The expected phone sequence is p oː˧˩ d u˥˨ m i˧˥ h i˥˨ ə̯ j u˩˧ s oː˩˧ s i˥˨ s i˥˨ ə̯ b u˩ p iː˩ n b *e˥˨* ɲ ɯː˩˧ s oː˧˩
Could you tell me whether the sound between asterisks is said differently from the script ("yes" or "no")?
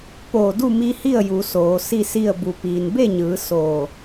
no